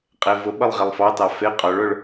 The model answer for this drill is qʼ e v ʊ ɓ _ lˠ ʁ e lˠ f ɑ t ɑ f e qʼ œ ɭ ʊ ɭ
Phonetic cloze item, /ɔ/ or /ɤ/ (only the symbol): ɤ